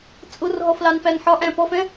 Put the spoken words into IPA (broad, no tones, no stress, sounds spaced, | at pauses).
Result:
t͡sʼ ʊ r ɦ ɔ f l ɑ n p æ n ħ ɒ ʔ æ̃ p ɔ f ɛ̃